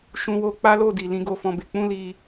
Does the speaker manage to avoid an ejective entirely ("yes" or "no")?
yes